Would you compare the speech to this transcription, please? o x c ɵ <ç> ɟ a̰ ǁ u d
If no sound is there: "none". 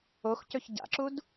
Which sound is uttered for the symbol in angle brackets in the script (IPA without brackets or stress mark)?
ç